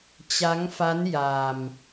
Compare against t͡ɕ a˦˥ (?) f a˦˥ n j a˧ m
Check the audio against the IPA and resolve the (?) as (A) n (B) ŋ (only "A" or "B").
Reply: B